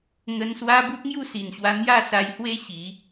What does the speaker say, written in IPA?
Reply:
ŋ ə˧ n s w a˦ b u˦ p̚ ŋ j u˥˧ s i˨˩ n ɕ w a˧ n̪ j a˥˧ s a˧ j h w e˦ ɕ i˨˦

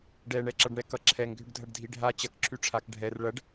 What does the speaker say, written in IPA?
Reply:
ɖ ɛ ɳ ɛ ǁ ʌ ɖ ɳ ɛ k ʌ ǁʰ ɛ ŋ ɡʱ ʏ ɖ dʱ ɐ ɖ dʱ i ɖʱ a t͡ɕ ɐ k ǁʰ y ʈ͡ʂʰ a k ɖʱ ɛ r ɭ ɐ ɖ

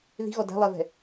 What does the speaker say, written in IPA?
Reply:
ð i̤ ɣ ɔ d æ̤ lˠ ɛ v ɛ̤

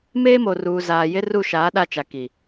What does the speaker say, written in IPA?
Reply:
m eː˦ m o˨ r uː˨ z aː˨ j ɪ˦ r u˦˨ ʃ aː˨˦ ɗ a˦ t͡ʃ a˨ k i˨

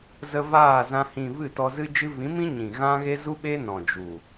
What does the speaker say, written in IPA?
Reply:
z ə˧ v aː˦˨ z ã˧ h ĩ˨ v ɨ˦˨ t ɔ˧ z ɨ˧ d͡ʒ ɨ˧ v ĩ˨˦ m ĩ˦ ɲ ĩ˨ ɣ ã˦ ɣ e˦ z u˦ ɓ e˦ n ɔ̃˨ d͡ʒ u˨

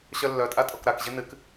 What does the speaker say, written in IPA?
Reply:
ɕ œ lː œ tʼ a tʼ ɔ k ɾ a k ʑ ɨ n ɨ k

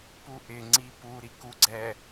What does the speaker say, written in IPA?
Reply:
p u ʔ ɪ ŋ͡ǀ i p u ɾ i k u ɡ͡ǀ ɛ

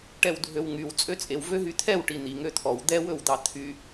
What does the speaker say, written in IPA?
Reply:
ʈ ɛ w dʱ ø w ŋ y w t͡sʼ ø t͡sʼ e w v ø ɦ y t̪ʰ ɛ w ʈ i n̪ i ŋ ø t̪ʰ ɔ w d̪ ɛ w ɵ w d̪ ɑ t̪ʰ y

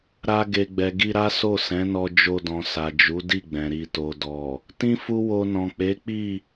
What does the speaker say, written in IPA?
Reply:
ɾ a˧ ɡ e˨ ɡ͡b ɛ˨ ɡ i˧ ɾ a˦ s o˦˨ s ɛ̃˨˦ n ɔ˧ d͡ʒ o˧ d ɔ̃˨ s a˨ d͡ʒ u˨˦ d i˦˨ ɡ͡b ɛ̃˨ ɾ i˨ t o˨ d ɔ˨ | t ĩ˦ f u˦ w o˧ n ɔ̃˨ k͡p e˨˦ k͡p i˦˨

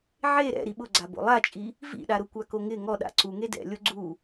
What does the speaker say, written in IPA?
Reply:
ʕ e ɾ ɛ̰ ɾ i ɓ ʊ ɡ͡ǀ a b o̰ lˠ a t͡ʃʼ i | v ḭ ɗ a ɾ ʊ kʷ a k o ŋ ɪ ŋ ɔ ɗ a̰ ǀ u ŋ e d ɛ̰ lʲ o ɡ͡ǀ u

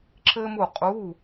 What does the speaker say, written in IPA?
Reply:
ǁ ɘː˥ m u˥˧ qʼ u˧˥˧

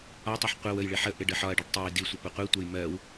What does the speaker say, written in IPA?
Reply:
ɒ tˤ ɜ ħ qʷ ɜ w ə j ɭ ɪ ħ ə ʔ ɪ ɖ ə ħ ɒ ɐ̯ ɖ i ɖ tˤ ɛ j d i sʷ ɪ p ʊ qʷ i tʷ ɛ j m ɜ w

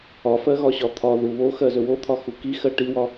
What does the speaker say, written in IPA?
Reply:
ɒ f ɜ ɣ ɒ ɕ ɒ t̪ʰ ɒ ð u β o x ɜ z ɵ w o t̪ʰ ɒ x u k i x ɜ ʈ i w ɒ

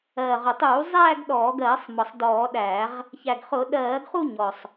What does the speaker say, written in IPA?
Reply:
ɜː˨˩ ʁ ʊ˨˩ tˤ uː˧˩˧ zˤ æː˥˧ ɡ ɗ ɔː˧˩˧ ɡ ɜː˧˩˧ sˤ m ɒ˨˩ sˤ d ɔː˧˩˧ ɗ æː˧˩˧ ʁ | ç æ˨˩ ɡ χ ʊ˧˩˧ ɗ ɜː˧˩˧ ɡ χ u˥˧ ɲ ɔ˨˩ sˤ

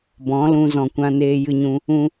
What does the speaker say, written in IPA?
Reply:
b ɔ̃˨˦ l ũ˧ z ɔ̃˨ kʷ ã˧ n eː˧ j ɨ˧ ɲ ũ˧ | ũ˧

